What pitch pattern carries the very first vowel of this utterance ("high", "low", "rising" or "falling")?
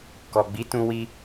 low